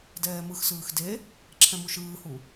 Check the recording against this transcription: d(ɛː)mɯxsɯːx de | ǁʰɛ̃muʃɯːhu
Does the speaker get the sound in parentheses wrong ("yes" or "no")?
no